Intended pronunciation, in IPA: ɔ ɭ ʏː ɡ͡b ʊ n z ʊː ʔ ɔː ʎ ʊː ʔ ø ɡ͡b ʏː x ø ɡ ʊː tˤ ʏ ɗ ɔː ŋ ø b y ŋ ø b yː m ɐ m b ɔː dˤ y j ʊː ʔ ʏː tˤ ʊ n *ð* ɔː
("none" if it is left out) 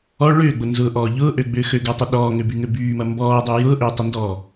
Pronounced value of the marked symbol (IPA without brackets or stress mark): d